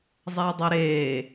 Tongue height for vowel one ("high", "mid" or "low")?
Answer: low